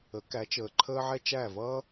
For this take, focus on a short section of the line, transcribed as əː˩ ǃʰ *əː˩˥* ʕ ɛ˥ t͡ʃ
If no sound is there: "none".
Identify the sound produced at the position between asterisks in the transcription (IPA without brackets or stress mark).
əː˥